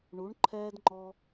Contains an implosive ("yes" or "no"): no